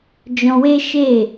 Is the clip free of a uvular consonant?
yes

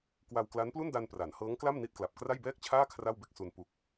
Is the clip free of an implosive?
yes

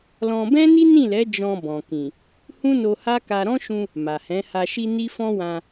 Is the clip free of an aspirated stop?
yes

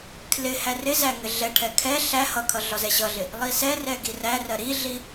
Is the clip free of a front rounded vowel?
yes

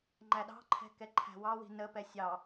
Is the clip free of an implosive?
no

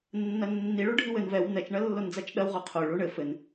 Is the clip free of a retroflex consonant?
no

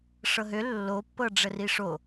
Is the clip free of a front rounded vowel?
no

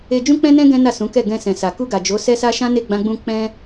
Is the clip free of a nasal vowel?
no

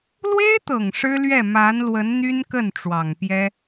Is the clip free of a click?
yes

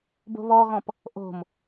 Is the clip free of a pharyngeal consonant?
yes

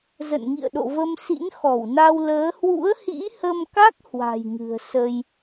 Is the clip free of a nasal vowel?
yes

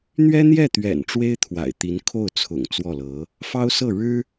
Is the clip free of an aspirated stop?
no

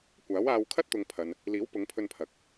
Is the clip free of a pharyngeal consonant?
yes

